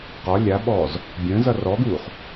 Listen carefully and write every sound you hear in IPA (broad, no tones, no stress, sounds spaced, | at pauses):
q ɒ lʲ a ɓ ɔː z | bʲ ə̃ː z ʌ r ɔ ɡ uː χ